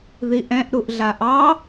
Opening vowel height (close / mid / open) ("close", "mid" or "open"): close